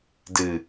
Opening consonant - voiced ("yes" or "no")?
yes